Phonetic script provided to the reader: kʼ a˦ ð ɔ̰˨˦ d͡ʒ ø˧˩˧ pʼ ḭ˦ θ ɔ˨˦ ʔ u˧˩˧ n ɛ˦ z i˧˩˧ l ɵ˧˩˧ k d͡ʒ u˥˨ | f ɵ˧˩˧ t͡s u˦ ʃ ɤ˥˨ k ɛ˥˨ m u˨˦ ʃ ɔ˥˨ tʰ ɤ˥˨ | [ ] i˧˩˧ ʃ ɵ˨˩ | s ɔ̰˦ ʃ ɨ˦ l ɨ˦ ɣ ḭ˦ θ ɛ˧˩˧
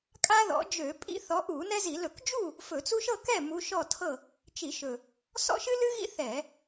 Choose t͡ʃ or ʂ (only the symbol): t͡ʃ